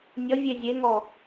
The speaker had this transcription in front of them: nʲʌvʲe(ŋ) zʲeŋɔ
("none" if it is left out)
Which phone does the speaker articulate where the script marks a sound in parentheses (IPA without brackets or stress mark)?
none